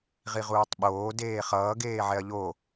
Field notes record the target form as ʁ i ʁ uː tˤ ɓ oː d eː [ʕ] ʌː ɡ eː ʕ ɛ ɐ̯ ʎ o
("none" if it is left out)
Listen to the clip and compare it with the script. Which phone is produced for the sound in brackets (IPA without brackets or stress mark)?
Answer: χ